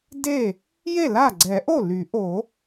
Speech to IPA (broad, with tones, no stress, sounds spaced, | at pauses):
d e˥˩ | j e˥˩ l a˥˩ ɡ͡ǀ ɛ˨˩˦ ʔ o˥˩ l y˨˩˦ ʔ o˨˩˦